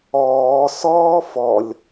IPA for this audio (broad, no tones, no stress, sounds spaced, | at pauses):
ɔː s ɔː f ɔ lʲ